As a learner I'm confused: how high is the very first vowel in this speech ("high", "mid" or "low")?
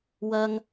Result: low